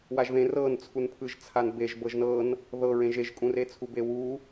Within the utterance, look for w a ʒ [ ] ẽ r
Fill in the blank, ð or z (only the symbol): ð